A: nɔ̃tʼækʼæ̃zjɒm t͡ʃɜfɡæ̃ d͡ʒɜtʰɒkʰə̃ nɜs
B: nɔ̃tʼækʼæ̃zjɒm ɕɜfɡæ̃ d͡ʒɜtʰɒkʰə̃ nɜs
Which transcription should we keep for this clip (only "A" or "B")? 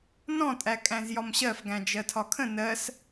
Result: B